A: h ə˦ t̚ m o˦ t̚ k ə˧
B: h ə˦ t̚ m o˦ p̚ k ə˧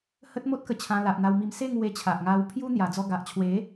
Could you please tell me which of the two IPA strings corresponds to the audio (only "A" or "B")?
A